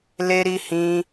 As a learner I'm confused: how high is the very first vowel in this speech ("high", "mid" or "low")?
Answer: mid